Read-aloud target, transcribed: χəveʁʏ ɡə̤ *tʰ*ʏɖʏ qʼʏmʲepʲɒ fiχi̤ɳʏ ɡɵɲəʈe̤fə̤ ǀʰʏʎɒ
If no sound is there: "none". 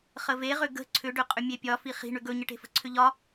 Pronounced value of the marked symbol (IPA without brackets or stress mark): ǀʰ